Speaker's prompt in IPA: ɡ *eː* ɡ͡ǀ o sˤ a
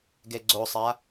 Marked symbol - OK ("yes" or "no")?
no